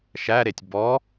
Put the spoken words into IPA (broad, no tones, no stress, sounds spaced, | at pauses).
ʃ æ ɾ e tʲ b ɔ